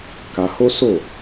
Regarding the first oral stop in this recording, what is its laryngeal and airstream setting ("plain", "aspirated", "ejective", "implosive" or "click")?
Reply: plain